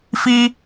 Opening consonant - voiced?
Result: no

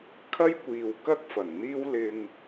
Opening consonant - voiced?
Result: no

